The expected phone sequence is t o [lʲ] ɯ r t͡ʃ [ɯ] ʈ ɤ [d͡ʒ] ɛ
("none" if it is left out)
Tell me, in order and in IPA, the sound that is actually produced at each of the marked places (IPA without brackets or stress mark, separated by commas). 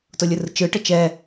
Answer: lʲ, ɯ, t͡ʃ